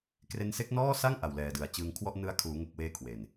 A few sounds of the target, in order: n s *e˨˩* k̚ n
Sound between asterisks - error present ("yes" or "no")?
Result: yes